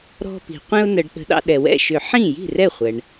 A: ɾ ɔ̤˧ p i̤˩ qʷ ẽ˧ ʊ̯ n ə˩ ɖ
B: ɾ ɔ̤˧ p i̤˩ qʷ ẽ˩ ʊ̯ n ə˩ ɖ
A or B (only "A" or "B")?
A